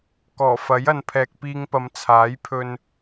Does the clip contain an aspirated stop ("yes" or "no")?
yes